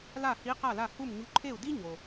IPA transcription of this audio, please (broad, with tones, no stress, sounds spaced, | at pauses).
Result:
l a˥˩ h i˧˥ q a˥˩ l a˥˩ h u˥˩ m ɲ u˧˥ ǃʰ e˥˩ u̯ d i˥ ɲ o˩